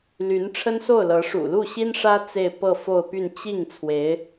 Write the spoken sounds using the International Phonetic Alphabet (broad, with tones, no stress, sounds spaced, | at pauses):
l y˧˥ n ʈ͡ʂʰ ə˥ n s o˥˩ ʊ̯ l ɤ˧˥ ʂ ṵ˨˩ l u˥˩ ɕ i˥ n ʂ ä˥ t͡s e˥˧ ɪ̯ p ɤ˥˧ f o˥˧ ʊ̯ p y˥˧ n t͡ɕ i˥˩ ŋ t͡sʰ w e˧˥ ɪ̯